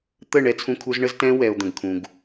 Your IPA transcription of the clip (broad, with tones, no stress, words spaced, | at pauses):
t̪ə˦˨ ɳɛ˦t͡sʰũ˦kʰu˦z ɳə˦z tɛ̃˦ wɛ˨o̯d̪ə̃˨ɡkʰũ˨ɡ